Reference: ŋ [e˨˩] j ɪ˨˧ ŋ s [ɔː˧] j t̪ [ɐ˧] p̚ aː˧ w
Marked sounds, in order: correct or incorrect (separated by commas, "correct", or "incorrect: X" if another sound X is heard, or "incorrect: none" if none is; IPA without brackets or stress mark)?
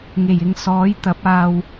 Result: correct, incorrect: ɔː˨˥, incorrect: ɐ˨˥